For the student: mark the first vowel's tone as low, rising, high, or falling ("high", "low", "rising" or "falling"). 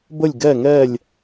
falling